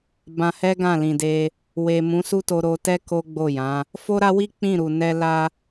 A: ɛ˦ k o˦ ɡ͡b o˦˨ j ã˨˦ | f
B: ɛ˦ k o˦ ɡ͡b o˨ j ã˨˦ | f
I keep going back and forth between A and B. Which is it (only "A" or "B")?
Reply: A